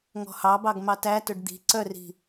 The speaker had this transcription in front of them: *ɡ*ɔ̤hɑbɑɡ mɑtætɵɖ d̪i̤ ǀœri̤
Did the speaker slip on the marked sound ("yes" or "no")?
yes